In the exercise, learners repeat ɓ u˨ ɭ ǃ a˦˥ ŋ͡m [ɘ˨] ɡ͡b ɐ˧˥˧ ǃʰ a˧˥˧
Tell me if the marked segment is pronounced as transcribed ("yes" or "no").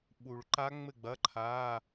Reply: no